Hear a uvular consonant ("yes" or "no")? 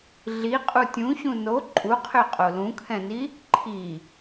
yes